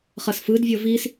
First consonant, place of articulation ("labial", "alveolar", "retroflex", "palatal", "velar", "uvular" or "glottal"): uvular